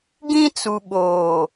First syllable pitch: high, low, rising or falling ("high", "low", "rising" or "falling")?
high